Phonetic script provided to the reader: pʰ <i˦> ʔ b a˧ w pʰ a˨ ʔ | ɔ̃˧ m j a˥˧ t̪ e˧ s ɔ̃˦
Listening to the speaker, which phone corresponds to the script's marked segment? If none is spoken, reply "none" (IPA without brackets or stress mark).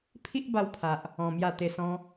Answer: i˦